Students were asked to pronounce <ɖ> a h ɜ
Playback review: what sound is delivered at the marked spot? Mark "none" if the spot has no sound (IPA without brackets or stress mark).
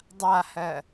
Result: dˤ